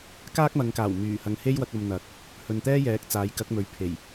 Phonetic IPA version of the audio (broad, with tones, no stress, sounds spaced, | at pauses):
k aː˥ k̚ m ɐ˨˧ ŋ k aː˨˩ w m yː˨˩ h ɐ˨ ŋ h e˥ j w ɐ˧ k̚ ɐ˧ m n̪ ɐ˨˥ k̚ | h ɵ˨ n t̪ ɛː˥ j ɛː˨˥ k̚ t͡s aː˨˥ j k ɐ˨˥ k̚ m ɵ˨ ɥ pʰ e˨˩ j